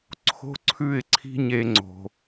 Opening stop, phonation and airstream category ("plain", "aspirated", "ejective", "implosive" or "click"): click